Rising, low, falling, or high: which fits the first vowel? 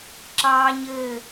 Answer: high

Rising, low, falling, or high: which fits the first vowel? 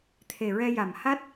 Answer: low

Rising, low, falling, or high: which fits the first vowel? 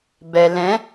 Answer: low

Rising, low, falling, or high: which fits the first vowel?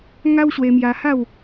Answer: high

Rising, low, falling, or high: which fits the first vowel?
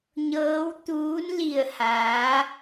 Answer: rising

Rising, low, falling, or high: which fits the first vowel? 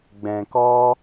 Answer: low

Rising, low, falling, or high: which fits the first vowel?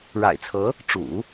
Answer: low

